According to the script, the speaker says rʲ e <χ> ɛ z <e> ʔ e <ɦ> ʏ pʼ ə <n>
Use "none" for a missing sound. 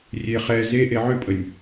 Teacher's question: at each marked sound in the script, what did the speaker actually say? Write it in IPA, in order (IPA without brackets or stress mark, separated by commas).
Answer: χ, e, ʕ, nʲ